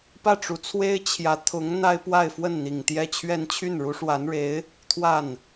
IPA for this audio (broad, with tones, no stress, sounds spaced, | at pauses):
p ä˥˩ ʈ͡ʂ u˧˥ t͡sʰ w e˥ ɪ̯ t͡ɕʰ j ä˧˥ t̪ʰ ʊ˧˥ ŋ n̪ a˥ ɪ̯ p w a˥˧ ɪ̯ f w ə˥˩ n n̪ i˨˩ ŋ t̪ j ɛ˥˧ t͡ɕʰ ɥ ɛ˥˧ n t͡ɕʰ y˥˩ n ɻ u˧˥ ʂ w a˧˥ n ɻ e˧˥ ɪ̯ | t̪ʰ w a˥˩ n